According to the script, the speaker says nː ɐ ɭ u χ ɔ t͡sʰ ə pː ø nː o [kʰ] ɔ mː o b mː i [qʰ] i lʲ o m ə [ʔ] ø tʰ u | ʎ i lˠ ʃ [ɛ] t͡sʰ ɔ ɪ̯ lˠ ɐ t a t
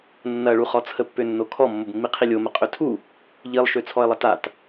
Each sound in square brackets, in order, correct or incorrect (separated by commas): correct, correct, incorrect, incorrect